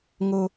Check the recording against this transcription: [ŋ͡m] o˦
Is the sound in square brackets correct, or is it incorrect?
incorrect